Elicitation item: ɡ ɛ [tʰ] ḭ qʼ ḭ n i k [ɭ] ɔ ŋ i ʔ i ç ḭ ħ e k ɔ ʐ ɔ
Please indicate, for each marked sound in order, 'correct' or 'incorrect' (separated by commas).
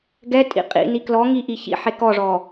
incorrect, incorrect